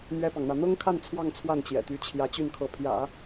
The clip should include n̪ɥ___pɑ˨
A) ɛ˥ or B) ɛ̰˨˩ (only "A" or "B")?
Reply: A